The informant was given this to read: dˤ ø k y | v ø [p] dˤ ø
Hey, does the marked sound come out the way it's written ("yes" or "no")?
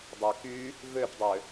yes